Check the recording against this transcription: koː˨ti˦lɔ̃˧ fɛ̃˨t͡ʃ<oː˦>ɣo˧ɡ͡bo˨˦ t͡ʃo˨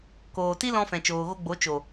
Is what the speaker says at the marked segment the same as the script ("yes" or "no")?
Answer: no